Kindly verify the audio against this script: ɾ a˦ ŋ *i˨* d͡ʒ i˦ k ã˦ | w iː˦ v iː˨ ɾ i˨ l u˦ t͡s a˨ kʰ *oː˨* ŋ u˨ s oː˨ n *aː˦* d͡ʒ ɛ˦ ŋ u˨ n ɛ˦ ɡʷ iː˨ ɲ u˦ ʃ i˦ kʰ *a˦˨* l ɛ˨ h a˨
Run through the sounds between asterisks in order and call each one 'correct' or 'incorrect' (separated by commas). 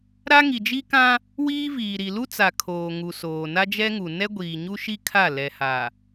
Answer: correct, correct, incorrect, correct